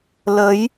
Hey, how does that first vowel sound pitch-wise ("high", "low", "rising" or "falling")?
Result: rising